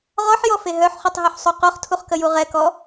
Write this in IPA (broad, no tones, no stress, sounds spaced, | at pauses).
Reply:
ʁ ɔ ħ j ɔ f e ɦ œ ħ χ u tˤ ɦ y ħ sˤ u q o χ tʰ u χ k ə j u ʁ ɛ k ɔ